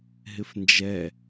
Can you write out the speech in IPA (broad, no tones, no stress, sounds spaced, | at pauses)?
ɦ ɪ f n d͡ʒ ɛ